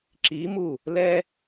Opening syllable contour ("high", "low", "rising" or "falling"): rising